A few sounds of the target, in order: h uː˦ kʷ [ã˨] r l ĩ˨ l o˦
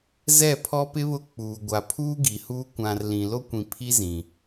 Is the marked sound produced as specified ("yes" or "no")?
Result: yes